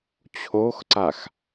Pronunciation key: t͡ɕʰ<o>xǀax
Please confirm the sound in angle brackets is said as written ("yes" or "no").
yes